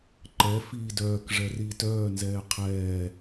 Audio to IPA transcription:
ǃ ɛ f iː d œː k ʐ ɛ r iː t œː n z ɛː qʰ ɛː

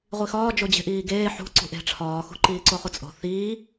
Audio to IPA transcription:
ʁʷ i x ɒː d͡ʒ o d͡ʑ e̤ ʔ iː ɡ eː ħ ṳ ǀ ṳ ʔ e̤ ʈ͡ʂʰ ɒː x ṳ ǃ iː ǀ o χ u t͡sʼ o̤ θ iː

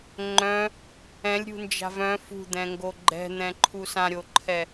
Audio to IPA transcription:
ŋ͡ǃ œ̃ | ɛ̃ lʲ ɾʲ ṳ n d͡ʒ a̤ v œ̃ f ṳ d̪ ɛ̃ ŋ ɡ o ɡ͡ǃ ɛ̤ n̪ ɛ̃ ǃʰ u s ã ɾʲ o ǃʰ ɛ

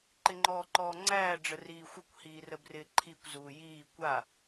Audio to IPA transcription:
ǃ ɪ ŋ͡ǃ ɔː ǃ ɔː ŋ͡ǀ æː ɖ͡ʐ ə r iː xʷ ə kʷ h iː r ə b r ɪː ǃʰ i kʷ z uː j iː kʷ a

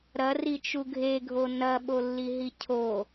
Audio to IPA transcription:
ɾ ɐ r i t͡ʃ u ɡʱ e ɡʱ o n ɐ ɓ o lː i ɦ i cʰ o

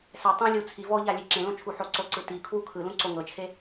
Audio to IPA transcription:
s ɛ tˤ ũ lʲ u t͡sʰ i v ɔ ʎ a lʲ e ǁ ẽ l õ t͡ʃʰ u ħ o ǀ o ǀ ɯ t i kʰ w u kʰ ɯ l ũ ǀ o ŋ ɤ t͡ʃʰ e

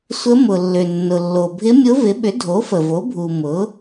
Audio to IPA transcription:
sʷ ə˧˥ m ʊ˩ lː ʏ˩ nː ʊ˩ lː o˩ bʱ ɪ˧˥ mʲ ʊ˧˥ v ɪ˩˥ ɓ ʏ˩˥ dʱ o˩˥ f ə˩ v o˩˥ bʱ u˩ m ʊ˩˥

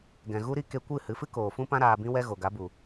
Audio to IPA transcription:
ɡ ɛ̃˨ ɣ u˦ ɾ i˦ k e˧ kʷ ɨ˦˨ h ɨ˨˦ f ɨ˦ k oː˨ f ũ˦ p ã˦ ɾ aː˧ b ĩ˦ w ɛ˦ ɣ o˨ ɡ a˨˦ b u˨

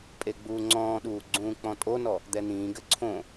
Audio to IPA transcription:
pʼ e ɡ͡b uː ŋ͡ǀ ɔ̃ː ɗ uː ɡ͡ǀ ũː k͡p ɔ̃ tʼ o n ɔ | d̪ ɛ n̪ ĩː ɡ ɘ ǀʰ õ

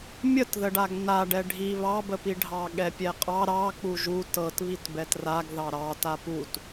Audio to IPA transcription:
mʲ ə t ð ə ɖ a ɡ n a ɖ ɛ ɖʱ i β ɑ b ə p i ɖʱ ɑ ɠ ɛ pʲ ɛ qʼ ɑ ɾ ɑ k͡p u ʒ u t ɤ t β i t b ɛ t r a ɡ ð ɑ ɾ ɑ t a p u t

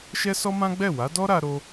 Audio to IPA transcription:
ʃ ɛ˦ s ɔ˦ m ã˦ ɡ͡b ɛ˦˨ w a˨˦ d ɔ˦ ɾ a˧ ɾ o˦

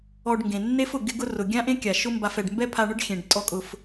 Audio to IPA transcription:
ɔ˧ ɖ ŋ ɡ ẽ˩ nː e˥ f ʊ˩ ɡ ɪ˥ ɡ ʊ˥ r ʊ˩ ɡʲ ã˥ ʔ ẽ˥ kʲ a˩ ʃ ʊ˥ m b a˧ f ɛ˩ ɖ m b ɛ˥ pʰ a˧ ɳ ʊ˥ ɖ xʲ ẽ˩ ɖ tʼ ɔ˧ kʼ ʊ˩ f

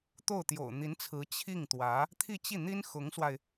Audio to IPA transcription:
t̪ o˥˩ ʊ̯ t̪ j o̰˨˩ ʊ̯ n̪ i˧˥ n t͡sʰ ɹ̩˧˥ t͡ɕʰ i˥˩ ŋ t̪ w ä˧˥ | t̪ʰ i˥˧ t͡ɕ i˥˩ n̪ i˥ n x ʊ˧˥ ŋ s w a˧ ɪ̯

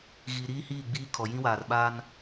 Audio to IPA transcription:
ɣ iː˨ ɾ iː˦ h iː˦˨ ɡ͡b iː˦ kʰ ɔ˨ j ĩ˦ w aː˨ r ɓ a˦ n

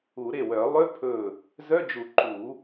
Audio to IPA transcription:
u˨˩˦ ɾ e˧˩ w œ˨˩˦ lˠ ʏ˧˥˧ pʰ ɵ˧˩ | z œ˧˥˧ d͡ʒ u˨˩˦ ǃ u˨˩˦

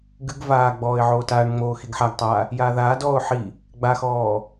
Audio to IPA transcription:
ɡ ɨ ɡ v aː ɡ͡b ɔː ɪ̯ ʕ oː t aː ɳ ŋ͡m oː x i ɡ ħ a ɡ tˤ aː | j aː ð aː d ɔː ʊ̯ ħ i | ɡ͡b a x ɔː

